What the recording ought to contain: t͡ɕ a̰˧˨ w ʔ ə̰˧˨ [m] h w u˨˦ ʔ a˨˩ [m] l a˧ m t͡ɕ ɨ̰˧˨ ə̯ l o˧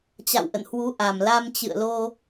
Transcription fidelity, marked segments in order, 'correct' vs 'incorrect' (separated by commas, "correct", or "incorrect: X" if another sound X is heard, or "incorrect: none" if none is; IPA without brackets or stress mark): incorrect: n, correct